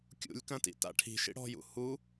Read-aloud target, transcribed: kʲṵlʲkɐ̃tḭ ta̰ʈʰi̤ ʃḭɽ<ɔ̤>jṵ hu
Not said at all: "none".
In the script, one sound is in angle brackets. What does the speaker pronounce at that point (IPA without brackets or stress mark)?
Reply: ɔ̤